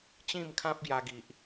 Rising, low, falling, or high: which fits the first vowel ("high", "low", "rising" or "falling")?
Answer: falling